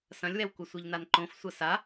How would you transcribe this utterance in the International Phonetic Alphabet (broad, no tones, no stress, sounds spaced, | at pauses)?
s ɐ̃ lʲ w ɛ w kʷ ɐ sʷ i ʎ n a n ǃ õ f sʷ ɐ s a